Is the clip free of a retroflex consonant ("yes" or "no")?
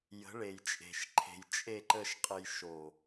no